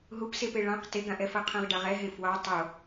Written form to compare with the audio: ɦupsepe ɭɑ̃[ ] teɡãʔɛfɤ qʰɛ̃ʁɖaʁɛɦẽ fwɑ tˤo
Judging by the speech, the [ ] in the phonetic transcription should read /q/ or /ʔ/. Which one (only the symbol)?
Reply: q